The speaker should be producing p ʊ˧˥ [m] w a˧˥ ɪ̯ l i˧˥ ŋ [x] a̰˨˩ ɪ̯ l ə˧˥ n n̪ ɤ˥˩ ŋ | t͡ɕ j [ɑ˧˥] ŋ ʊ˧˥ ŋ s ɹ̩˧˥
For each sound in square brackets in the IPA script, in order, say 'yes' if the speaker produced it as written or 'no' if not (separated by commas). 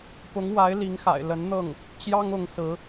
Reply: no, yes, no